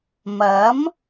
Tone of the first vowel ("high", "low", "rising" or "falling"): rising